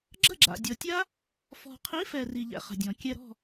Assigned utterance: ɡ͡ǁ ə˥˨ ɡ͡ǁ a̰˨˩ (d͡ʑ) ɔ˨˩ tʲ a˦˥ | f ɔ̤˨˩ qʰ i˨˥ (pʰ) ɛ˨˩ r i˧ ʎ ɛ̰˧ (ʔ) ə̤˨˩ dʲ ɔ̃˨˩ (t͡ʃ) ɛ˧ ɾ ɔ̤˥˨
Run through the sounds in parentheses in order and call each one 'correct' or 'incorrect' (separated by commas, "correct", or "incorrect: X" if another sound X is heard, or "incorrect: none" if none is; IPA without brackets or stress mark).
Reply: incorrect: dʲ, incorrect: f, incorrect: χ, incorrect: kʲ